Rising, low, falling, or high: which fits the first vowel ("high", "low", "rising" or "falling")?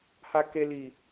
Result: high